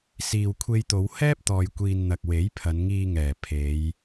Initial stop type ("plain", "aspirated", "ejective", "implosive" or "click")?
aspirated